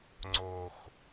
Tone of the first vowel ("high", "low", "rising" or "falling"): low